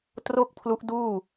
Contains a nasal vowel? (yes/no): no